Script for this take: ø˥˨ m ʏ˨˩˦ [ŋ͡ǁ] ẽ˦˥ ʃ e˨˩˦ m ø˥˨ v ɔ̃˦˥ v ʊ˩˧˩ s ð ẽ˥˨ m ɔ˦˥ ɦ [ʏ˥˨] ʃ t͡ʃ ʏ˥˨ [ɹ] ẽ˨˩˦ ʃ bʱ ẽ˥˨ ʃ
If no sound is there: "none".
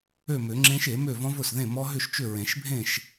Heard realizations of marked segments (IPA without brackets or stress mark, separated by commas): ŋ͡ǁ, ʏ˥˨, ɹ